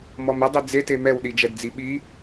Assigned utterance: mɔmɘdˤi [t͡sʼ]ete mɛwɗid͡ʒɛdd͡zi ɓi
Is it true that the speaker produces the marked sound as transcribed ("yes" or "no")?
no